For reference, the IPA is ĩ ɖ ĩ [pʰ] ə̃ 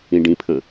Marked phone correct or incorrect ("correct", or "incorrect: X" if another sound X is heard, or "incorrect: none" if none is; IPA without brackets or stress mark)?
correct